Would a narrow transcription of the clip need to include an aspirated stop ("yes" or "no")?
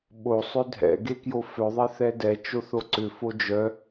no